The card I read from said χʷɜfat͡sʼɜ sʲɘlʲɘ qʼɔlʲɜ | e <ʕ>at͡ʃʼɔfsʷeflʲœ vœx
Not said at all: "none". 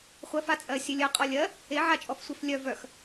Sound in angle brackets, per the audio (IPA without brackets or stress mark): ʕ